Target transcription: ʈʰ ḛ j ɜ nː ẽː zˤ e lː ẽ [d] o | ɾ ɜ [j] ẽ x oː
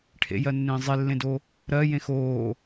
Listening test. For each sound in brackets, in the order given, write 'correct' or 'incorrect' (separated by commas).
correct, correct